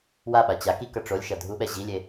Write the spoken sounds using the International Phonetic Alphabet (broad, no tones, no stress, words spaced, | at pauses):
waɓa t͡ɕa ki kʌʈ͡ʂolʲʃʌ dʱuɓɛ ʑilʲe